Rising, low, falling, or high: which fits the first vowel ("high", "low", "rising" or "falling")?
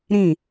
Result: falling